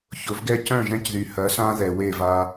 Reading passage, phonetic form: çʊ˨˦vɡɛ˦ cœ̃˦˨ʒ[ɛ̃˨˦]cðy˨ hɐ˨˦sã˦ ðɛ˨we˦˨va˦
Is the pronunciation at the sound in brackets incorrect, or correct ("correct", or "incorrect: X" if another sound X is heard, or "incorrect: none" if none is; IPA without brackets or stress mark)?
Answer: incorrect: ɛ̃˦